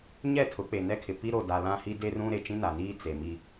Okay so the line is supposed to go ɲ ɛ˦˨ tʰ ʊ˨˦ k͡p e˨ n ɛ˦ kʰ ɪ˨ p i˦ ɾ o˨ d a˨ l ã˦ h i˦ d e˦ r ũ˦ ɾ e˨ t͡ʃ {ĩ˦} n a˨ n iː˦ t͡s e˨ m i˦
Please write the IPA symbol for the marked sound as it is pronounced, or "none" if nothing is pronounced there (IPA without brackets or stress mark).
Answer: ĩ˦